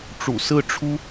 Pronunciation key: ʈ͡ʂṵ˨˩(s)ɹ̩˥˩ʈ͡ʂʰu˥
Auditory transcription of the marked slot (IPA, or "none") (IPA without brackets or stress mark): s